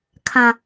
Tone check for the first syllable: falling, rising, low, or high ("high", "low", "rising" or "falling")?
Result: low